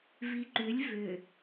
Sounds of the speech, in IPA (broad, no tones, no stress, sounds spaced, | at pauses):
v i ǃ ʏ lʲ v ʏ